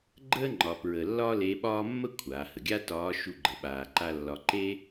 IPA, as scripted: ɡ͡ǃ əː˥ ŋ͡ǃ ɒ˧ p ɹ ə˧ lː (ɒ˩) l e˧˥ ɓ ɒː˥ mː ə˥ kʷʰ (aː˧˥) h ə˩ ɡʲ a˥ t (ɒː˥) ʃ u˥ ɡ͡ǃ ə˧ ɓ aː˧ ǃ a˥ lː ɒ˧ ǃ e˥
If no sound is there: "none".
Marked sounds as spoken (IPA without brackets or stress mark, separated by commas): ɒ˥, aː˩˧, ɒː˧˥